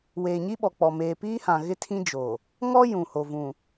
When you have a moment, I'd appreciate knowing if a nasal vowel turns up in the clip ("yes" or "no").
yes